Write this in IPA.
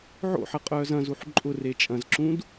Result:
ʕo̰ħɐ qʼœːzɐ̃zuħ ǃʼʊ ret͡ʃʼɐ̃zǁũd

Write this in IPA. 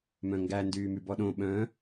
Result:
mœ̃ŋɡæ ndyːmybɔɗõ ɓœ̃

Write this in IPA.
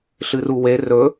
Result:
ɬɨruwe rɵ

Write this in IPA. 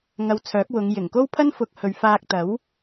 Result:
ŋɐ˧wt͡sʰœː˨˥k̚ wʊ˨˧ŋ jɪ˨˩ŋko˥wpʰɐ˥nfʊ˨˥k̚ hɵ˨˧ɥfaː˧k̚t̪ɐ˨˥w

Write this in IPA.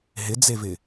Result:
ɦɪd͡zevɪ

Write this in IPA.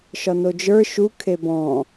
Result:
ʃɒnod͡ʒə˞ ʃu kʰebɔ̃

